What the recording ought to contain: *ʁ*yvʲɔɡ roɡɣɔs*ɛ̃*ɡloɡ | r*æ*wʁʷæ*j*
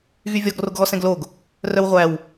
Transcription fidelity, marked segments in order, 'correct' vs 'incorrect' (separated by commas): incorrect, correct, incorrect, incorrect